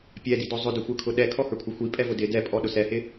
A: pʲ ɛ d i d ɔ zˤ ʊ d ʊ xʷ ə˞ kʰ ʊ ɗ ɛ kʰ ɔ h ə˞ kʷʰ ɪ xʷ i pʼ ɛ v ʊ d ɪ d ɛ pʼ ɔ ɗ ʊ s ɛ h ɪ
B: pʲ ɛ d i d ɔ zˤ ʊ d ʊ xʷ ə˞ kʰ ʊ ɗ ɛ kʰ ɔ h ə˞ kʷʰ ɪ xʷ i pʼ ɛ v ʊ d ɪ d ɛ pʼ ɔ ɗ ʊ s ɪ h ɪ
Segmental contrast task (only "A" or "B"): A